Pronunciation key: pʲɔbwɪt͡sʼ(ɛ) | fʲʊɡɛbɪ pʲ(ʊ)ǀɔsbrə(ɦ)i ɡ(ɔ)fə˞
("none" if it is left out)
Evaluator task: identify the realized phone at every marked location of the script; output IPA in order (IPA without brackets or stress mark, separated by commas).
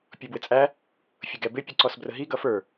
æ, ʊ, ɦ, ʌ